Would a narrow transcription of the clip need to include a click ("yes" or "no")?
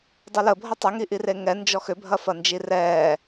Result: no